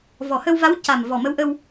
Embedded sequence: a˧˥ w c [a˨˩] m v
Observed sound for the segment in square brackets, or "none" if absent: a˨˩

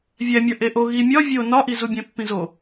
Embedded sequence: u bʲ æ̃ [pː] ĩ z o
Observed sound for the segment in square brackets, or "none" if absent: pː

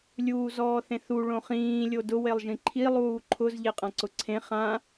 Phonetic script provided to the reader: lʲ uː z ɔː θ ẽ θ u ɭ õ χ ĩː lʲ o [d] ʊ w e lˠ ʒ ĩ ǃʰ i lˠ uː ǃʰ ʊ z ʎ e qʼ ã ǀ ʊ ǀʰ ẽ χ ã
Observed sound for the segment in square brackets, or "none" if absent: d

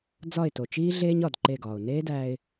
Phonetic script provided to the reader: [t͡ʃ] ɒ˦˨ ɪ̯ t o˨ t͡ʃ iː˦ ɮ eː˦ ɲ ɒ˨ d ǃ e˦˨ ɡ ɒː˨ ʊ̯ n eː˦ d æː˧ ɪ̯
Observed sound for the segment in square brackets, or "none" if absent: d͡z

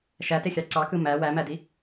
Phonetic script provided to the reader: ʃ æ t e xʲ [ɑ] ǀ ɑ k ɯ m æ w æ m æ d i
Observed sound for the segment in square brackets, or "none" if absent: ɑ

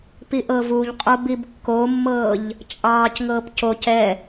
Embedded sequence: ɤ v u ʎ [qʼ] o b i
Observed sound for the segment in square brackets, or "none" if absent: qʼ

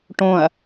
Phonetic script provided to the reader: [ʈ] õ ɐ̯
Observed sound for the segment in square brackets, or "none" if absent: ʈ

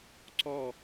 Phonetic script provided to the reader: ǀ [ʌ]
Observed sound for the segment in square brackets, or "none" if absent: ɔ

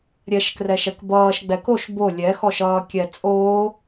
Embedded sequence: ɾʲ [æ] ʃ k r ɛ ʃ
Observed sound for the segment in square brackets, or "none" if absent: ɛ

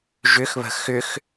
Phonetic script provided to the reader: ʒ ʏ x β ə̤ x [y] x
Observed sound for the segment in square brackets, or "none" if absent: ʏ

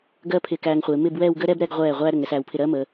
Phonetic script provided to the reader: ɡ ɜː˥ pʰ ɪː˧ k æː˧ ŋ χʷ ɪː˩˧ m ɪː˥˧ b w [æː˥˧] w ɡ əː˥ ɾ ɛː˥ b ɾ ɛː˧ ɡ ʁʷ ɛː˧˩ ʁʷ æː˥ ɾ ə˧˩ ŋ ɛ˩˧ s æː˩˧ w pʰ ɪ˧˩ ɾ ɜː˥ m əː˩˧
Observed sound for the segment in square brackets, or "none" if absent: ɛː˥˧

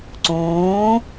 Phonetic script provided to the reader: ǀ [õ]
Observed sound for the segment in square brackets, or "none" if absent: õː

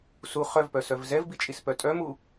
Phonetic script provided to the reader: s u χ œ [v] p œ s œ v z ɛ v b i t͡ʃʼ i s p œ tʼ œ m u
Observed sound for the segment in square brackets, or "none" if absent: v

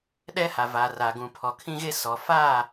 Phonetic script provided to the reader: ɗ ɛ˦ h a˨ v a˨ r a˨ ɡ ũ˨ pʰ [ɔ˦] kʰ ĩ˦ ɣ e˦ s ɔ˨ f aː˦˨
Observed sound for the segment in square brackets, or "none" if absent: ɔ˨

